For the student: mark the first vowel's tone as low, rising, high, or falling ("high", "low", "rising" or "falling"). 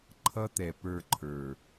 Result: high